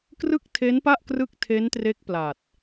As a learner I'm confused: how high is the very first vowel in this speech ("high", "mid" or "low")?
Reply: high